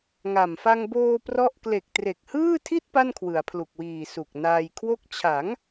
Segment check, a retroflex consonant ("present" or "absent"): absent